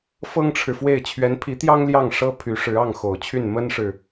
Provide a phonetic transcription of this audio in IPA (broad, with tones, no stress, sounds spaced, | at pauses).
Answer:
f ɤ˥ ŋ ʈ͡ʂʰ ɻ̩˨ f w e˥˩ ɪ̯ t͡ɕʰ ɥ ɛ˧˥ n pʰ i˧˥ t̪ j ɑ˥ ŋ l j ɑ˥˩ ŋ ʂ ɤ˥ pʰ y˧˥ ʂ ɻ̩˧˥ ɑ˥˩ ŋ x o˨˩ ʊ̯ t͡ɕʰ y˥˩ n m ə˥ n ʂ ɻ̩˨